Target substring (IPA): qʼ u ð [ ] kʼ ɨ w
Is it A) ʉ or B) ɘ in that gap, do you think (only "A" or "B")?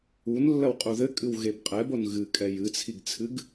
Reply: B